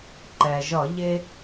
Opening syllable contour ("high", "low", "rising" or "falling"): low